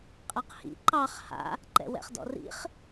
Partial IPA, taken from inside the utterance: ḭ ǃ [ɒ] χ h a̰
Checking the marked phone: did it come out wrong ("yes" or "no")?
yes